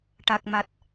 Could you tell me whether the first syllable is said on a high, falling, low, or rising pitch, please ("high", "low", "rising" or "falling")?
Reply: low